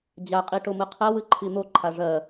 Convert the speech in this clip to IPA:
d͡ʑ a qʼ i ʈ o m ɨ qʰ ɜ w ɨ ǃʰ i n̪ o ǃʰ a ʐ ɜ

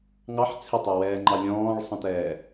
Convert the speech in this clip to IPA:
ŋ ɑ ħ t͡sʰ ɪ tˤ æ w ɛː ŋ͡ǃ ɑ lʲ ɔ̃ː ɭ sˤ ə̃ t ɛː

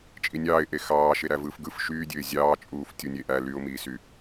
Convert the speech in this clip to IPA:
t͡ʃʼ i nʲ ɑː ɪ̯ ʔ e x ɑː ʃ e ɾ æ v ɯː f ɡ ɯ f ʃ yː dʲ ø ɪ̯ zʲ ɑː t͡ʃʼ uː f tʲ u nʲ e ʔ æ l y ʊ̯ m iː s y

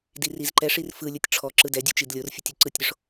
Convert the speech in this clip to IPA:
d i r i z ǃ ɛ ʂ i r f ɯ lʲ ɯ tʲ ʈ͡ʂʰ ɔ ǁ ɯ d ɛ dʲ u t͡ʃ i d lʲ o r fʲ ɯ tʲ u ǀ ɯ tʲ ɾʲ o ʂ

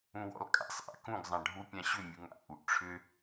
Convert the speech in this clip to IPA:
ũ w ɔ̰ l kʼ a̰ sˤ ʔ a̰ k ũ ɡ zˤ ã ɖʱ u pʲ ã ɕ ʏ mʲ u ŋ a̰ ʔ u ʔ ʈ͡ʂʰ ʏ

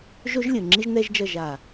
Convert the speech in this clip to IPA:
ʒ o˦ ʒ lʲ ɯ˨ ŋ͡ǁ i˦ ʒ n ɛ˦ ʒ d͡ʒ ʌ˦˨ ʒ a˨

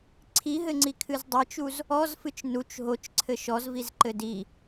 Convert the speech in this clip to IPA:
ǀʰ i ɦ ɘ ŋ͡ǀ i kʰ ɨ z dˤ ɘ t͡ʃ u z | ɔ z f ɨ t͡ʃ n u t͡ʃ ɦ o t͡ʃ ǀʰ ɘ ʃ ɔ z v i z ǃ ɘ d i

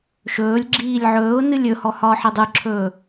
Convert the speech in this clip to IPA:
ʃ ɵː lʲ ɡ͡ǁ iː lʲ ʕ ɵː ʊ̯ n ɨ lʲ ɵ h ɔ h ɒː ħ e dˤ ɨ ǁʰ ɵː

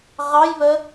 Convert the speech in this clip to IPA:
ʁ ɑ j β ə

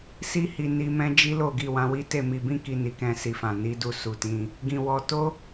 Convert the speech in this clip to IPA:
s i˧ h i˨ n i˧ m ɛ̃˦ d͡ʒ i˦ l o˦˨ ɡ i˧ w ã˧ w i˦ t e˦˨ m i˧ b ĩ˦ k i˧ n i˨ k ɛ̃˧ s i˨ f ã˨ n i˨˦ d u˧ s u˨ t ĩ˧ | ɡ ĩ˨ w ɔ˧ t o˦

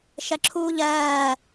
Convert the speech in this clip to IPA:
ʃ ɜ ǁʰ uː ʎ ɜː

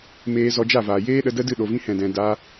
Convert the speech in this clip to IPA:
m eː˧ z ɔ˧ d͡ʒ a˦˨ v aː˨ j eː˦ ɗ ə˧ d ə˦ d ɨ˦˨ ɗ o˨ v ĩ˧ h ɛ̃˨ d ɛ̃˨ d a˧

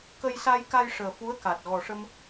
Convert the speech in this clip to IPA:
k ə˧ j s a˧ j k a˧ j ʂ əː˨˩ f u˧˥ ə̯ k a˨˩ t̚ ɣ ɔ˨˩ ʂ ə˧ m

